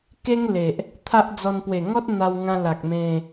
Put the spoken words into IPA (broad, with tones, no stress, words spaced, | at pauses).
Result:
ke˦ŋle˨ʔ | t̪ʰa˦ʔd͡zɔ˧n pwe˨˩ŋɔ˦t̚ n̪a˧wŋã˧la˨k̚ mẽ˧